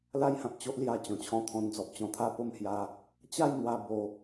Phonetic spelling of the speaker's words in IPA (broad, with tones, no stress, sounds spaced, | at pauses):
l a˦ j h ã˨ p̚ t͡ɕ o˦ ʔ l j a˧ t͡ɕ ɔ̃˨˩ t͡ɕʰ ɔ̃˧ t̪ʰ ɔ̃˧ n d͡z ɔ˨ p̚ t͡ɕ ɔ̃˧ t̪ʰ a˥˧ p o˥˧ m h j a˧ | t͡ɕ a˥˧ j n̪ w a˧ b o˧